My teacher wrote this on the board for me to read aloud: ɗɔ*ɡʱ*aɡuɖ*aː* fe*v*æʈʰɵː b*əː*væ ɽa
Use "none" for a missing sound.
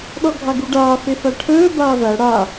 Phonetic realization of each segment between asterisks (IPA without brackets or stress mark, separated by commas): ɡʱ, aː, f, aː